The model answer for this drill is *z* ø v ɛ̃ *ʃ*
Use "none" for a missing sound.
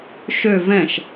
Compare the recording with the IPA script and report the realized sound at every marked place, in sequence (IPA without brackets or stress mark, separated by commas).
ʃ, ʃ